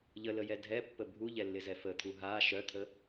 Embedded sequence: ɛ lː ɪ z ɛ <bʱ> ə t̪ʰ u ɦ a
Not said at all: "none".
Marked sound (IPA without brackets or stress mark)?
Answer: f